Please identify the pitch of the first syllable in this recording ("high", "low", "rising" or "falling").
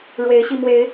rising